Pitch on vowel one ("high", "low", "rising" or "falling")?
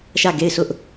falling